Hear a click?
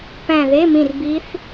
no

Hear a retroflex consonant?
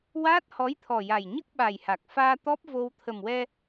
no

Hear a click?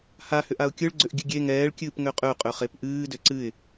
yes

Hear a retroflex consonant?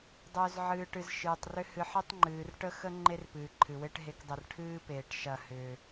yes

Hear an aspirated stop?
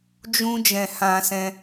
no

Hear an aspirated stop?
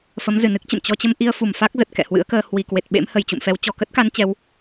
no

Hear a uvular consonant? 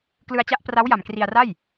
no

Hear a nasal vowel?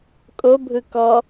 no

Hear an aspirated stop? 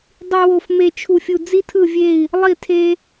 yes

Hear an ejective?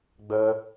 no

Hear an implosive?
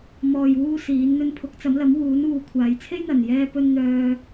no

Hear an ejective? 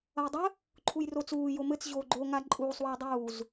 yes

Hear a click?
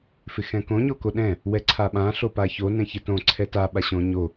yes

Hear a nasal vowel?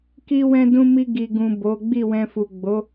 yes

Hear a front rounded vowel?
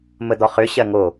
yes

